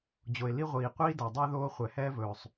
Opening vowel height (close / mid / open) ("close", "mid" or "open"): mid